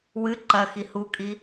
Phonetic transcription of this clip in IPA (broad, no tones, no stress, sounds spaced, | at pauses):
w ɨ ǃ ɐ x i h u kʼ i